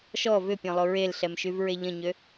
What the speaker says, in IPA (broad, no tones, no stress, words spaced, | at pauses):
ʃɔ vʏpʲɔ̃lˠo ɹelɬɛmʃyvɹe ʎə̃ɲø